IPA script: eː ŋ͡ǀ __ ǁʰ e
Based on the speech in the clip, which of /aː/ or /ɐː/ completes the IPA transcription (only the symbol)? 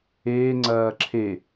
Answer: ɐː